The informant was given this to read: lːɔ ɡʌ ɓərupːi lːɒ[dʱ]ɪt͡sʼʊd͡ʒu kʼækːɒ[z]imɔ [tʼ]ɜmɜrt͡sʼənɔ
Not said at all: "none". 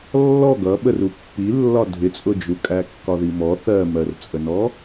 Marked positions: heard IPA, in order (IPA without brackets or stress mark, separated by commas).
dʱ, ð, θ